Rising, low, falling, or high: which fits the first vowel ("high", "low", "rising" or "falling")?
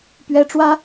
high